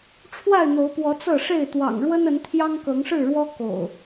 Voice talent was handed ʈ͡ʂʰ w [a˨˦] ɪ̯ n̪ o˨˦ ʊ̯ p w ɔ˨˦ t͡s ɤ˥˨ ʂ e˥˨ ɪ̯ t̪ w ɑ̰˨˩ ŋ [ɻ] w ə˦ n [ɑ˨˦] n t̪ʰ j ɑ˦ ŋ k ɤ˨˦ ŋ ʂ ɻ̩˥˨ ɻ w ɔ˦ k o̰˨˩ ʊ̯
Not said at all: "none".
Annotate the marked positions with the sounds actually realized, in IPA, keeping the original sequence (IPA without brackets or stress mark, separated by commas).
a˥˨, ɻ, ə˨˦